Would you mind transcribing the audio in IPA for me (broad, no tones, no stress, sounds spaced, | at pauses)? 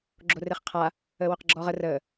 ɡ͡ǁ o r e χ qʰ a | əː w ø q ɡ͡ǁ ɔː ʁ ə r əː